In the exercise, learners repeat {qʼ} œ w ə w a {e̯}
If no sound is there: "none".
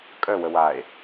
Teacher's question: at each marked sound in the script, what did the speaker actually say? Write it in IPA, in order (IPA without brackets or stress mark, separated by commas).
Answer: kʼ, e̯